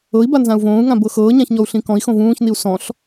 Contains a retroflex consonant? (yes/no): no